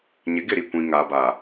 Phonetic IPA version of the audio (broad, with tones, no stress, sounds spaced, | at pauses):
ɲ ɪ˨˦ ɡ ɪ˦˨ ɾ i˦˨ kʷ ĩ˨ ŋ aː˨ b aː˨